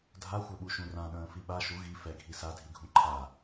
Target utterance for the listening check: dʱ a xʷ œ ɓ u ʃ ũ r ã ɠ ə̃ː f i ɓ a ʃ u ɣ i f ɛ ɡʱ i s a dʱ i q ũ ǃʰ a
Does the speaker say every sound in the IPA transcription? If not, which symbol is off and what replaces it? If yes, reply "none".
q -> ɡʱ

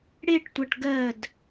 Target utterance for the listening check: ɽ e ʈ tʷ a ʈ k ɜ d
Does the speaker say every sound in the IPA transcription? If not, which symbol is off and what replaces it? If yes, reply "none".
k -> ɡ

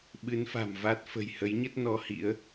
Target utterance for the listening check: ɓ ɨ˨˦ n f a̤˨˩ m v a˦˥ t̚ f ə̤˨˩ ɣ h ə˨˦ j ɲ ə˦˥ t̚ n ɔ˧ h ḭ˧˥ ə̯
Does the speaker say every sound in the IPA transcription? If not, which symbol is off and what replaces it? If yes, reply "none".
ɣ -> j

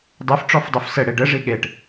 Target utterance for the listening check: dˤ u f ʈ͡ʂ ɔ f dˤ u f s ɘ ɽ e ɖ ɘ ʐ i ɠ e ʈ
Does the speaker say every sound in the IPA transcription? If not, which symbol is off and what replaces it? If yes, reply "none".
none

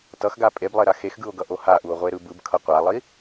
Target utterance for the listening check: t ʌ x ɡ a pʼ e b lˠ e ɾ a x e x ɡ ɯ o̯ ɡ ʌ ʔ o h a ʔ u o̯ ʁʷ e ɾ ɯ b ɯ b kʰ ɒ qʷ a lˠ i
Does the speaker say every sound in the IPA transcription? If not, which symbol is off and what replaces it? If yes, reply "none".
ɒ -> ʌ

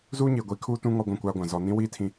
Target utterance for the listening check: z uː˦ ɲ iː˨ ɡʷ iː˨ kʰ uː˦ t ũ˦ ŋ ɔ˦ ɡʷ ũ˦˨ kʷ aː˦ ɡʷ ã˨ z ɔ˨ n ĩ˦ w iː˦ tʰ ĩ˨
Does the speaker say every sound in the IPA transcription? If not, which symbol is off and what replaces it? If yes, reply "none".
none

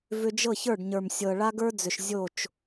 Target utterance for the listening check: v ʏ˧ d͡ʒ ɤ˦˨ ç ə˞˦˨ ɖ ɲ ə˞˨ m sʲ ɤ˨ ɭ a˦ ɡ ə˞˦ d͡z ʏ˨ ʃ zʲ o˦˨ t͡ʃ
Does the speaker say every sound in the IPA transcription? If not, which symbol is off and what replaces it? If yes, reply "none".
none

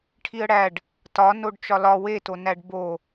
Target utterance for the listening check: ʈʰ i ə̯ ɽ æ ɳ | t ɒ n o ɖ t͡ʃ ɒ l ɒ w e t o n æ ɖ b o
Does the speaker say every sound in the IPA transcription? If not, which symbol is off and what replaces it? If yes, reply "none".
ɳ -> ɖ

